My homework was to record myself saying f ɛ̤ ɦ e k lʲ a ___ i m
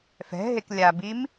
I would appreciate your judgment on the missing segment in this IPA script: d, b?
b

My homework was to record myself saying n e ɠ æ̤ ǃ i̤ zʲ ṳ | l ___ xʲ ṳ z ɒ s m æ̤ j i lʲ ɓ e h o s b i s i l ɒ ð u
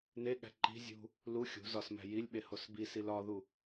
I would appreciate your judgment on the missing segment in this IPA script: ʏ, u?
u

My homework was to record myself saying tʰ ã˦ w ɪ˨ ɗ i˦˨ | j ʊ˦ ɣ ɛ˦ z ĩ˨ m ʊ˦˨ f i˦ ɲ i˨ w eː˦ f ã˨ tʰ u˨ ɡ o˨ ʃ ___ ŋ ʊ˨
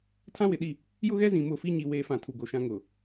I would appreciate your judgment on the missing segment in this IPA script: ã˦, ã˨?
ã˦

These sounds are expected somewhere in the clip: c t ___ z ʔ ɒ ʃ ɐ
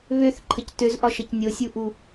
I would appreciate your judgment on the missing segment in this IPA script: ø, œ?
ø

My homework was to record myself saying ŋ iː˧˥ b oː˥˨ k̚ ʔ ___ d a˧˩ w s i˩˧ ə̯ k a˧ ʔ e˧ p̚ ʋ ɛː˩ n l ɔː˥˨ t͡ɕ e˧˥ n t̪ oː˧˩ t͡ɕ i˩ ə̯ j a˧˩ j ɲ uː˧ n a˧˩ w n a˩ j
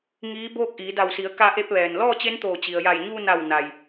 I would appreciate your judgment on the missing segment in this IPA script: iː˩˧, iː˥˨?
iː˩˧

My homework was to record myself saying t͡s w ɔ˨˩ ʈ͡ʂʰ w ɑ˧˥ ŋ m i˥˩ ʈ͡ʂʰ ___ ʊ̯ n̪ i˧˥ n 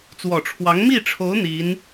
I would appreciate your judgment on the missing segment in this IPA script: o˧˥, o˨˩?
o˧˥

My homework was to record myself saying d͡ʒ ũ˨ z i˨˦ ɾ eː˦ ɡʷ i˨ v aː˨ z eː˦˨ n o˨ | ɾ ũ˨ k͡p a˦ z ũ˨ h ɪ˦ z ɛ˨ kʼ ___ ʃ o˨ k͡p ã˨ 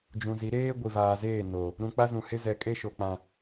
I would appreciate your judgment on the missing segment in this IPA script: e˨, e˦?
e˦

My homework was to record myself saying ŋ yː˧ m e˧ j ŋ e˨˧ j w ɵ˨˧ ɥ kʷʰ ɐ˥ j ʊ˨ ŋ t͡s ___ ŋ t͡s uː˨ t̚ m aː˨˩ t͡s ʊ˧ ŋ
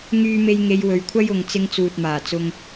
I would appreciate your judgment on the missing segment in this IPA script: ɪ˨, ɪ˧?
ɪ˧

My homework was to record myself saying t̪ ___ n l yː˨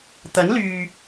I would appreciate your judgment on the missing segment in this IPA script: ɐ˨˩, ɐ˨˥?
ɐ˨˥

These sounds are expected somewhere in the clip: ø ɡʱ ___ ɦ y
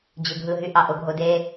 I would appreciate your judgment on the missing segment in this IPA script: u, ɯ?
ɯ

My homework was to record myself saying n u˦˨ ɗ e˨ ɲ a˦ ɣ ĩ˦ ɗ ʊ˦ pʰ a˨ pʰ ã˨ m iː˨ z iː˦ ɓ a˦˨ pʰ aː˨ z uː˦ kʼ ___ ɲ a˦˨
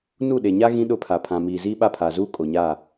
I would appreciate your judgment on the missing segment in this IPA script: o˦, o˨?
o˨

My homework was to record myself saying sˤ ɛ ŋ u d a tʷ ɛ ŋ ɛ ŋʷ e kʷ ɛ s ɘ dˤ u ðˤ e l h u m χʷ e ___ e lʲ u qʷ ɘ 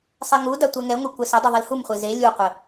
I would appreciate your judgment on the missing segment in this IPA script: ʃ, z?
z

